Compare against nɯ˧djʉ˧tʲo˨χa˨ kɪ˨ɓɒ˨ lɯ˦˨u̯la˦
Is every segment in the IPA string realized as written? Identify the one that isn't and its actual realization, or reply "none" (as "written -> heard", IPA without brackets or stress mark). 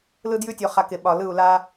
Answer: n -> l